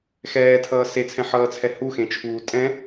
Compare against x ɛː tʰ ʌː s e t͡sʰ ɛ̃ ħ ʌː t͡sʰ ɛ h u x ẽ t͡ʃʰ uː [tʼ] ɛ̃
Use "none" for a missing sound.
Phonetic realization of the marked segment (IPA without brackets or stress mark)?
tʼ